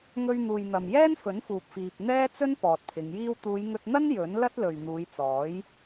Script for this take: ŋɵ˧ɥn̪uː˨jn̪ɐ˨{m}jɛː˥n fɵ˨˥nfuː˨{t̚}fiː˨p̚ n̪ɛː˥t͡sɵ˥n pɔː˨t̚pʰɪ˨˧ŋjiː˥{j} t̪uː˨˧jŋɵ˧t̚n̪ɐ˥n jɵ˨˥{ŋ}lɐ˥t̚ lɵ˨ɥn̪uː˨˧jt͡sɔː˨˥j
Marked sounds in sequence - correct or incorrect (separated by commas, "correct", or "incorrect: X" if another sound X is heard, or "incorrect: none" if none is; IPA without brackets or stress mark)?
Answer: correct, incorrect: p̚, incorrect: w, incorrect: n